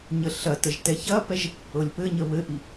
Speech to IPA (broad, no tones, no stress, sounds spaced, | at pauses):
ɲ ə ɬ ɐ t ə ʒ t ɛ ç ɐ p ɛ ʒ | ɤ lʲ p ɘ ɲ ə β ɘ ʔ i